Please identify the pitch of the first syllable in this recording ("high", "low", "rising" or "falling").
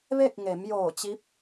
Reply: falling